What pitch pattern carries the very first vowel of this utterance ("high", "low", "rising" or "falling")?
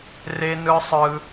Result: high